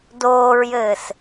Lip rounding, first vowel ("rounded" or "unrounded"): rounded